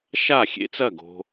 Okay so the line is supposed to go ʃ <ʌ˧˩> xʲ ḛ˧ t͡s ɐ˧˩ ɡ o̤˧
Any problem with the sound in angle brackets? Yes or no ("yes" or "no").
yes